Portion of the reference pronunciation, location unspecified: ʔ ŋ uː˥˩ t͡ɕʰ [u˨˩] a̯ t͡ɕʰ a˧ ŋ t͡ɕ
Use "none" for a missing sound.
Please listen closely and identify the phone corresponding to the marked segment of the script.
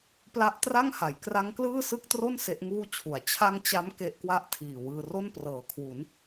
u˨˩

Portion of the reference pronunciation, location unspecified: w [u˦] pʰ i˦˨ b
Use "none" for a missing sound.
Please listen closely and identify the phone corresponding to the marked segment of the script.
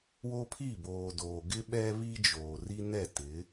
o˦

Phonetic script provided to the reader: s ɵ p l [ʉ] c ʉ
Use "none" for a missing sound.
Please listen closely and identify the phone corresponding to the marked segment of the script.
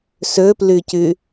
ʉ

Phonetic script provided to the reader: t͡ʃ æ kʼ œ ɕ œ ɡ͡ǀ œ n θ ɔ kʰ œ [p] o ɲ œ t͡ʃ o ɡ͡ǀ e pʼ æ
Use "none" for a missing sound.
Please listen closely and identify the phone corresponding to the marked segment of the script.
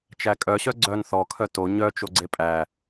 t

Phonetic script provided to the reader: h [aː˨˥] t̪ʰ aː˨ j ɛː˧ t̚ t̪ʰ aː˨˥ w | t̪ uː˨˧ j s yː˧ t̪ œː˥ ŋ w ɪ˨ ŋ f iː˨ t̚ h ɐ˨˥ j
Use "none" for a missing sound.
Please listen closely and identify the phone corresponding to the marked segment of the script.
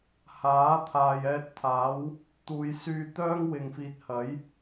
aː˨˥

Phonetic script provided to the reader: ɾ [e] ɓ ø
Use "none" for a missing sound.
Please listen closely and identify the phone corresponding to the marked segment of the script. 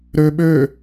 ø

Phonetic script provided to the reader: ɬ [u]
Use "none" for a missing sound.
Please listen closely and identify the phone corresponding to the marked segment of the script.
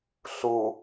u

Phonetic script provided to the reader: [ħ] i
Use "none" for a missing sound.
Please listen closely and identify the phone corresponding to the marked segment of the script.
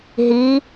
ɦ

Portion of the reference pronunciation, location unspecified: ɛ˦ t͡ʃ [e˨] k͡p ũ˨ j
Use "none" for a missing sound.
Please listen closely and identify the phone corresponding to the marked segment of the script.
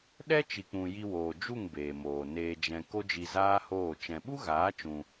i˨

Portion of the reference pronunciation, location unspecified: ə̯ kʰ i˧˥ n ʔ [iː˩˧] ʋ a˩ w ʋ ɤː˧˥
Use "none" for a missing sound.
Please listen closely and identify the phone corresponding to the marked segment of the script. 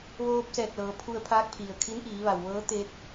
iː˩˧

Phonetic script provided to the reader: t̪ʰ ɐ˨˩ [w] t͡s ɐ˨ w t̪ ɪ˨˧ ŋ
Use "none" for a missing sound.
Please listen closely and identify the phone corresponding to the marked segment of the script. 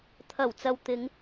w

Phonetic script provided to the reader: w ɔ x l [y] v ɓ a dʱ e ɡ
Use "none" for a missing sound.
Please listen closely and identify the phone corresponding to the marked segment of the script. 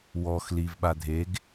i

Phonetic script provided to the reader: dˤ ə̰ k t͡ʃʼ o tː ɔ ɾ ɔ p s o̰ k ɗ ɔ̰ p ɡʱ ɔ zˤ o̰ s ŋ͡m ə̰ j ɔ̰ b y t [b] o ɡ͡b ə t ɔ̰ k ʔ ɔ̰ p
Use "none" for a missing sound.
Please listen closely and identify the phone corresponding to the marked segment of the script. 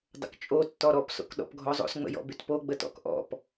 p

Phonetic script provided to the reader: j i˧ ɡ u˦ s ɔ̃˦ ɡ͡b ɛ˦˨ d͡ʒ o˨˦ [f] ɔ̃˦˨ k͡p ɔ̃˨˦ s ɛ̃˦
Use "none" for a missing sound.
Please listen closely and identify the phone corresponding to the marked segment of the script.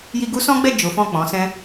f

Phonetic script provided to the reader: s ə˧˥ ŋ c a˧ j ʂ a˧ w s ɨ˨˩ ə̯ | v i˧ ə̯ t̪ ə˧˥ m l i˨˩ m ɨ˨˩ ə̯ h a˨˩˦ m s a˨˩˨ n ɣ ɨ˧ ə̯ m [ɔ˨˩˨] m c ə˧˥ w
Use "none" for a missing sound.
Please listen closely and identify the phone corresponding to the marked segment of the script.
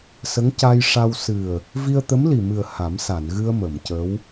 ə˨˩˨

